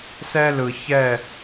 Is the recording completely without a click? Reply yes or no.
yes